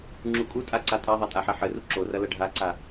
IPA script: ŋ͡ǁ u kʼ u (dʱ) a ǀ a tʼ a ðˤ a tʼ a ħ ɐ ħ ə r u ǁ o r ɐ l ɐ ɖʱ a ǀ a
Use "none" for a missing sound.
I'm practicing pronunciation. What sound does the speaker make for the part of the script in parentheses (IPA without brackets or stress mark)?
tʼ